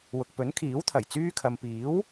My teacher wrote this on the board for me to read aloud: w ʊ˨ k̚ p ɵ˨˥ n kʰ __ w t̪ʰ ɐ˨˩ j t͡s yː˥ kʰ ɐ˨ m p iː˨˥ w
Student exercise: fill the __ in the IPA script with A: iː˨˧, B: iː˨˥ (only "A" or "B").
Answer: B